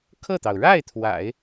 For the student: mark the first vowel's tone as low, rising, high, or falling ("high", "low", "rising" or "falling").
falling